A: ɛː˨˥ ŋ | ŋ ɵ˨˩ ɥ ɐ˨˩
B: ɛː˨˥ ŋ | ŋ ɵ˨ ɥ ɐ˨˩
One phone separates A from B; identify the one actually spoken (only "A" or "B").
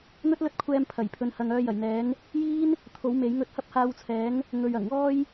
B